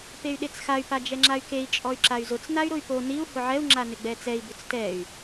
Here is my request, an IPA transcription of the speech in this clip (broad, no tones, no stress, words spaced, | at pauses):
pey̯ɗet͡sxay̯ pad͡ʒɛŋ͡ǁay̯kei̯ t͡ʃʼɔy̯ǁay̯zʊt͡s nay̯ɾʊy̯po niu̯ hʊʕɛu̯ ŋ͡ǁanɪɡ͡bɛt͡sɛi̯ bʊt͡stɛy̯